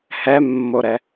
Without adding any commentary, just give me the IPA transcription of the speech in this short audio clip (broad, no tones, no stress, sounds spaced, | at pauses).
h ɛ mː o ɾ ɛ